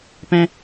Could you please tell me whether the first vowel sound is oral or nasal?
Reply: nasal